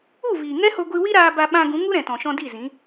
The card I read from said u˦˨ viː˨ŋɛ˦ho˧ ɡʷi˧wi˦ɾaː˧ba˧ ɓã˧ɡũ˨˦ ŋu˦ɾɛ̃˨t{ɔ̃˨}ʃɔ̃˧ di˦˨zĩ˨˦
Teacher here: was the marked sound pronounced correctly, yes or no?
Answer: yes